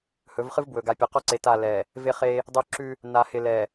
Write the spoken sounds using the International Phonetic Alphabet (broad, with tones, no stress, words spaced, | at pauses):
hɵ˨˦vχɨ˦vbwɵ˨ ɡa˨pʲɵ˨qɔ˦ǀe˨ ta˦˨lɛ˨ | vɪ˦χe˦ | dˤɵ˦ǁʉ˦ | na˨hɪ˨lɛ˨